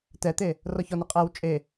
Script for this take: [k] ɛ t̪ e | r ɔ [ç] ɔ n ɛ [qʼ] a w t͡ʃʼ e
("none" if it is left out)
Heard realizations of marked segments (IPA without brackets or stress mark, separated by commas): t, ç, qʼ